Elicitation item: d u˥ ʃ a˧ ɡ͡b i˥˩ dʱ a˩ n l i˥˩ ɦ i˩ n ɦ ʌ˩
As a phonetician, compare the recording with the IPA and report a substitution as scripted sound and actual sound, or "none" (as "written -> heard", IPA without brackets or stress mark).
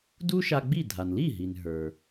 ʌ˩ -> ə˞˩